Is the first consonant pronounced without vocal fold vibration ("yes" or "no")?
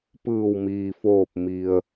yes